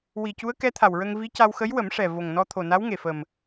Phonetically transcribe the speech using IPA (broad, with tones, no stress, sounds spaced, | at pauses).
w i˨˩ c u˧˥ ə̯ k ɛ˧˥ t̪ʰ a˨˩ w ɹ ə˧ ŋ v i˧˥ c a˧ w x ə˧˥ j w ə˨˩˦ m ʂ ɛ˨˩ v o˨˩ ŋ n ɔ˧ t̪ʰ o˨˩ n a˧˥ w ŋ e˨˩ f ə˨˩ m